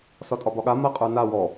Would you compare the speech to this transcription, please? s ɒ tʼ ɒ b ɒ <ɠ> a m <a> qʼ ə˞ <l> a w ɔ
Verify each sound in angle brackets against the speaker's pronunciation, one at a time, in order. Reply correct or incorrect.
correct, correct, incorrect

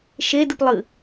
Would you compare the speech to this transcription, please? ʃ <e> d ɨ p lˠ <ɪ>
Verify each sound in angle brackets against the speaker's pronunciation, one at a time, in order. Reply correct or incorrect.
correct, incorrect

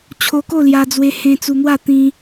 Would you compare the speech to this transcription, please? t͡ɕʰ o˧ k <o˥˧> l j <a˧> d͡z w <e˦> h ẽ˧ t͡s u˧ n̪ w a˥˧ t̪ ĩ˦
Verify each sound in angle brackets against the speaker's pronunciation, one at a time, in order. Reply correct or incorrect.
correct, correct, incorrect

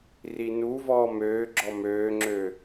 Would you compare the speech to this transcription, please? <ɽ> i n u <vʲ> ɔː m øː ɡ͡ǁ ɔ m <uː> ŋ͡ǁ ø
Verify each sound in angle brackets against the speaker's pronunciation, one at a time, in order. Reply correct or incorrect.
incorrect, incorrect, incorrect

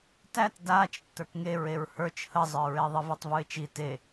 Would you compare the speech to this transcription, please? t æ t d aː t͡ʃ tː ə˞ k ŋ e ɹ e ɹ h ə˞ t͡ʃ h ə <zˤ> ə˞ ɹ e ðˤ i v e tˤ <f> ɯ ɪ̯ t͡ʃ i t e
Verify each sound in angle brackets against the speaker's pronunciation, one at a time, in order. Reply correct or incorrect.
correct, incorrect

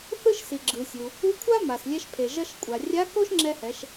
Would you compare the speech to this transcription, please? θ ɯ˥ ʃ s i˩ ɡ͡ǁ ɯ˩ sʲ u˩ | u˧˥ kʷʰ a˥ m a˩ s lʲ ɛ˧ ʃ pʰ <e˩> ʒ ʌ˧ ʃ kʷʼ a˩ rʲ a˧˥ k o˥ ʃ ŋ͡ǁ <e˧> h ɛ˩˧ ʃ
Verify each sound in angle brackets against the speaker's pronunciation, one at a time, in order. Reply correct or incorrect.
correct, incorrect

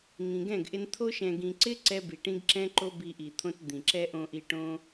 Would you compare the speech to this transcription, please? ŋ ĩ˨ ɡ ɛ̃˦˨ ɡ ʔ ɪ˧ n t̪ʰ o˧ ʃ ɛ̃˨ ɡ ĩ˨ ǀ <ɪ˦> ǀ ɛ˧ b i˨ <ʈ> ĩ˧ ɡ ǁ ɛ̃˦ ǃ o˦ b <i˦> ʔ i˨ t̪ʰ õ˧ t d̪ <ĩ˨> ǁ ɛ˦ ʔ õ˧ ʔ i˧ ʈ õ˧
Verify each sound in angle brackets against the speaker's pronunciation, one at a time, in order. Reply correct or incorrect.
correct, correct, incorrect, correct

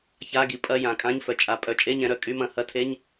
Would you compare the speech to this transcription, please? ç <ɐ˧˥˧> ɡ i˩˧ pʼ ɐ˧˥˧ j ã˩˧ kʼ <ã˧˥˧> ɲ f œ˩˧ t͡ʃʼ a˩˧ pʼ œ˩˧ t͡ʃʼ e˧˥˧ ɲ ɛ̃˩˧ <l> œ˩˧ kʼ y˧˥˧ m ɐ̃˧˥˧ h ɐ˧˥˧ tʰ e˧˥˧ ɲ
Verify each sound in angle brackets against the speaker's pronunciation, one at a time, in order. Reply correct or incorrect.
incorrect, correct, incorrect

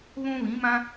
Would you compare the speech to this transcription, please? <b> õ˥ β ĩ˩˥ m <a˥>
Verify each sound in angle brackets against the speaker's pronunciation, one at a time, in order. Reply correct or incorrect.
incorrect, incorrect

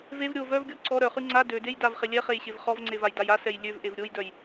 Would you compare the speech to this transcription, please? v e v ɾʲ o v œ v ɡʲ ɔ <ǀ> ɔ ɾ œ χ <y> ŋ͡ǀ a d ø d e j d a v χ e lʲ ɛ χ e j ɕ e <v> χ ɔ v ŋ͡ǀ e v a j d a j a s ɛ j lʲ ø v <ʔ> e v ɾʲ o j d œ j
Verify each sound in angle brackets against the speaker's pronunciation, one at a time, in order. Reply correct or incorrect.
correct, correct, correct, correct

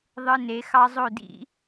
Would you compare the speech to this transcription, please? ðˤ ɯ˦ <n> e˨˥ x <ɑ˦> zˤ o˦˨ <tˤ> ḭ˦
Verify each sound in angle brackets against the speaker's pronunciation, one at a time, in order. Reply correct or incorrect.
correct, correct, incorrect

